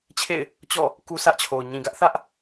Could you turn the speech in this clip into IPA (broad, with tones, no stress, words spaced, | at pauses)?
t͡ɕʰḛ˦˨ɪ̯ | t͡ɕɔ̰˦˨ | ku˦sʰä˦ʔt͡ɕʰo˨ʊ̯ ɲĩ˨ɡä˦ʔθä˦ʔ